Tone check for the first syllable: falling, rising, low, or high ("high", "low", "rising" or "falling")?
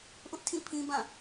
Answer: high